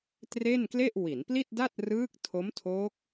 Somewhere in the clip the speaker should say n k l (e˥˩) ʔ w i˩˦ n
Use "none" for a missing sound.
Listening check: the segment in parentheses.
e˥˩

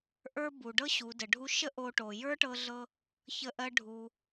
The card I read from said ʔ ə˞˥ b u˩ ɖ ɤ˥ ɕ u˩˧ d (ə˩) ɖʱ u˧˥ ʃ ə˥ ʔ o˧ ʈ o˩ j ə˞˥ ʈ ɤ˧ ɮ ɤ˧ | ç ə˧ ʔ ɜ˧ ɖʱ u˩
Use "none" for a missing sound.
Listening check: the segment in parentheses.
ə˩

